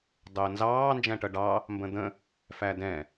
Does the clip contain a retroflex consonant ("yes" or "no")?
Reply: yes